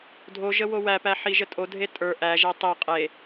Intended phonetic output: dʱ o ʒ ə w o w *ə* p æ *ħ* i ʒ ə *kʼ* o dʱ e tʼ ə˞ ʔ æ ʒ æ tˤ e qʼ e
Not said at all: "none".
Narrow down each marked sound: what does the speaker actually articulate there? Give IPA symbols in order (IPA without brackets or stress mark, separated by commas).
æ, ħ, tʼ